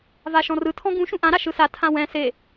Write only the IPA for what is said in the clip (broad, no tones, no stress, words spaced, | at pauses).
vaʃɔ̃rɯ tʰɔ̃ɡũ ʃũʔã ɾaʃɯsa tʰãwɛ̃ se